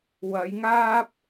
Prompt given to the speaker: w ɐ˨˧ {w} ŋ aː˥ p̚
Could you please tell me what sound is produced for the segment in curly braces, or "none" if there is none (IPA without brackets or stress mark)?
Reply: j